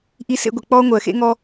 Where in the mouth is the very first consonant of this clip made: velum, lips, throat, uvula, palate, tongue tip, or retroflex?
throat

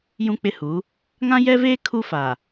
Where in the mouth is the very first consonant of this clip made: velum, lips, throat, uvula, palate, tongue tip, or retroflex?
palate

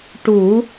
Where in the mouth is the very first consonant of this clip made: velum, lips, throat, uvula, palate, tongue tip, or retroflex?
retroflex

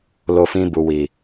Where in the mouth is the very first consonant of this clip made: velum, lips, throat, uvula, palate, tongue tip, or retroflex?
tongue tip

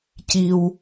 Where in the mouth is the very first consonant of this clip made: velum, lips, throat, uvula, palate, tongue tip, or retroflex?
palate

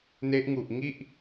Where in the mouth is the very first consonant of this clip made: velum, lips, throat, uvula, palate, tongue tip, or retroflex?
tongue tip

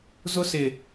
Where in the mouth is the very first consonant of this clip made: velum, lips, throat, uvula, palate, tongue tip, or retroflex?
tongue tip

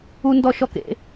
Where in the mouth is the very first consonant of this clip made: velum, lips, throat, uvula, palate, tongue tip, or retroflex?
tongue tip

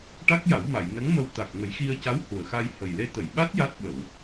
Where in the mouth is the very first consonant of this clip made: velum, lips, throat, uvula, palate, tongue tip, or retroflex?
retroflex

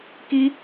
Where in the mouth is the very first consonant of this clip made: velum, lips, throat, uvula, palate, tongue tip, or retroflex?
velum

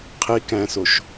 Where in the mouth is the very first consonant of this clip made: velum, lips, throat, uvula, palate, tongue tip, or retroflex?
uvula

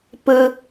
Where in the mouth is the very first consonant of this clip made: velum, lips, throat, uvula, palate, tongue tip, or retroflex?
lips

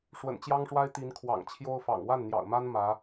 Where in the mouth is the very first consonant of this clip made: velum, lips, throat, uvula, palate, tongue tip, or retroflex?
retroflex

